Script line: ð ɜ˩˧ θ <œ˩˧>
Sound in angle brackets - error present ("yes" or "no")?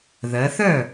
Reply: yes